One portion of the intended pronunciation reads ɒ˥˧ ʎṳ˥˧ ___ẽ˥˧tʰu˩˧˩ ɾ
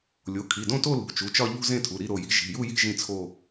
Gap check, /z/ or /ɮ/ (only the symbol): z